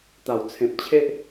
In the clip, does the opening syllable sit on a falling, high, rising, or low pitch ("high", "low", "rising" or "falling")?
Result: low